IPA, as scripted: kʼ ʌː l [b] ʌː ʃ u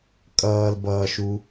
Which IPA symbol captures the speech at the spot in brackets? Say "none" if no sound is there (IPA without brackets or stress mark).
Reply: b